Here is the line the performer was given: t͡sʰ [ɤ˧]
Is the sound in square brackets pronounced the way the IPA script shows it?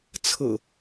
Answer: no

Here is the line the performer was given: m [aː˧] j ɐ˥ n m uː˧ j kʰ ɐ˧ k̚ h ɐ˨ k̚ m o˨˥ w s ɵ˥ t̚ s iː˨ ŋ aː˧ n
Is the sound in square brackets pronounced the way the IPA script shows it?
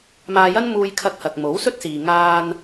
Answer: yes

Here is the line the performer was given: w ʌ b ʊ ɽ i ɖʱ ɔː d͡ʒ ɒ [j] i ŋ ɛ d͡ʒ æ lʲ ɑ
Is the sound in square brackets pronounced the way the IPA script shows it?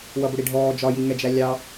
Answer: yes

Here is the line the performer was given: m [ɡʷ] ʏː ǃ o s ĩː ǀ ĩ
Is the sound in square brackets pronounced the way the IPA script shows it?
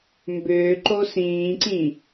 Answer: no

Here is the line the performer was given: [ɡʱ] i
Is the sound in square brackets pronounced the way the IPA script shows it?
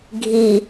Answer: yes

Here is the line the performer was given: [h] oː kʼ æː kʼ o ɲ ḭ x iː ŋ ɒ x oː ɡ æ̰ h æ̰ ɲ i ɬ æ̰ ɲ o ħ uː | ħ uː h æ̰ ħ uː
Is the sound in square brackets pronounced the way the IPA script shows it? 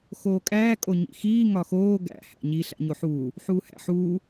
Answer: no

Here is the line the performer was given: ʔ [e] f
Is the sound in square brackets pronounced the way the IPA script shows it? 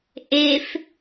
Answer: yes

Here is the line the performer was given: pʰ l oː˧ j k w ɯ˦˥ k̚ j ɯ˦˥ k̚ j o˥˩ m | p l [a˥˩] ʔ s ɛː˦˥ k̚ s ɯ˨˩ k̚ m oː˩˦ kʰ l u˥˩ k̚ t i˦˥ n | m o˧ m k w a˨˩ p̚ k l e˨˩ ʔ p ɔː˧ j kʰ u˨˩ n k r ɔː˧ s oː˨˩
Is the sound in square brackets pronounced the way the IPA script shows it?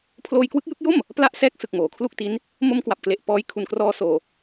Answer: yes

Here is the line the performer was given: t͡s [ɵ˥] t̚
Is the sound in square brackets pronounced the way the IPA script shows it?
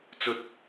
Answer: yes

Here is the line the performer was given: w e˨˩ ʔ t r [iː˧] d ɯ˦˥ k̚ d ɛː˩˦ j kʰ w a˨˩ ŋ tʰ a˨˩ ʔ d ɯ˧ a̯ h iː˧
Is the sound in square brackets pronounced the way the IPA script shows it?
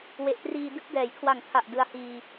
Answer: yes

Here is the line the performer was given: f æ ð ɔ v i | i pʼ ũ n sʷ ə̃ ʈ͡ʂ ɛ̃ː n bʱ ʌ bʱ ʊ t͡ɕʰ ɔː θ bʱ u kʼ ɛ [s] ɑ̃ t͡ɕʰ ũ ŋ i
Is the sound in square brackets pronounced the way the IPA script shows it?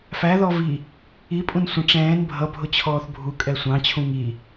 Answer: no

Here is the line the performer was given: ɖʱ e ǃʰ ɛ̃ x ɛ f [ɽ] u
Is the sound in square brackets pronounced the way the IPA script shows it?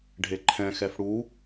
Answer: yes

